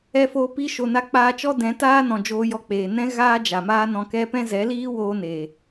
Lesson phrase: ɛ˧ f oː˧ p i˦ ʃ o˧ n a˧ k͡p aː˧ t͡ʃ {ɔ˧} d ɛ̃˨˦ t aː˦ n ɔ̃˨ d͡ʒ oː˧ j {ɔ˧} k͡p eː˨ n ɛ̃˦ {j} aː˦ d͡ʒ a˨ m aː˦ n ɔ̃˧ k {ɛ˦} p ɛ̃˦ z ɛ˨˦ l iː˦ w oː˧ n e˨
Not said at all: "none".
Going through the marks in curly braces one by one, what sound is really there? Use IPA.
ɔ˦, ɔ˧, ɣ, ɛ˦

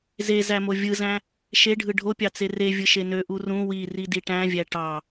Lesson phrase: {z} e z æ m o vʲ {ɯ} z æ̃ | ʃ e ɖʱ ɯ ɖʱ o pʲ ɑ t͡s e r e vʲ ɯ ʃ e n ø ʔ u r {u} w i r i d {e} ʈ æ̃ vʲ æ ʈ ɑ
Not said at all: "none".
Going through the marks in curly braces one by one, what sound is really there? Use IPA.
z, ɯ, ũ, i

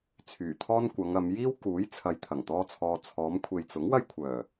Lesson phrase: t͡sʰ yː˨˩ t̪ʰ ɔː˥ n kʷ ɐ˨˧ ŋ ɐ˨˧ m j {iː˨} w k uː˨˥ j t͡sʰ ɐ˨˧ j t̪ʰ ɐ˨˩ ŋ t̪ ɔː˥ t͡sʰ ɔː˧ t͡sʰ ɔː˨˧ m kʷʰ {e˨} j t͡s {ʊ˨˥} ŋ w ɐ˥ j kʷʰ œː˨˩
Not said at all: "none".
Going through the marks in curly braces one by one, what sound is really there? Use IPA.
iː˥, e˨, ʊ˨˥

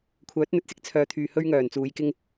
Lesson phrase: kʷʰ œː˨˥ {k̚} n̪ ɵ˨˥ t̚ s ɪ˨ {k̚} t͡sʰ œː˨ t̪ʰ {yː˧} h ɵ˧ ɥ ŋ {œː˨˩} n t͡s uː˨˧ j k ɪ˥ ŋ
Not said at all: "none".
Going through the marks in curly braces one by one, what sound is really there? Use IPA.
t̚, k̚, yː˨, œː˨˩

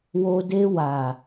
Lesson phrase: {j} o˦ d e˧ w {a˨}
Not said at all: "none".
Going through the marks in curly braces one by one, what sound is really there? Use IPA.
w, a˨

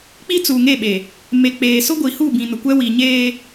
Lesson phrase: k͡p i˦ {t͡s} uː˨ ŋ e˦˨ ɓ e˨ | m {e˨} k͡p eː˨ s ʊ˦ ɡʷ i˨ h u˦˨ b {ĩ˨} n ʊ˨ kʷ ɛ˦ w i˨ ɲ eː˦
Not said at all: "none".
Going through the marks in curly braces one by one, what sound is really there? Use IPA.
t͡s, e˨, ĩ˨

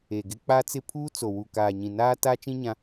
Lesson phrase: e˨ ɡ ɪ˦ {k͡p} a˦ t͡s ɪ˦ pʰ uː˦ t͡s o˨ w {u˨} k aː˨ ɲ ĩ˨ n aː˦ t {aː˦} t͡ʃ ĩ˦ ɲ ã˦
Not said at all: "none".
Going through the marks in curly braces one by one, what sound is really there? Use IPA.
k͡p, u˨, aː˦

